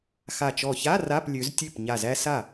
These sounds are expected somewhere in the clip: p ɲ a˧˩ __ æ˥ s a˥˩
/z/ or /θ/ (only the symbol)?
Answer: z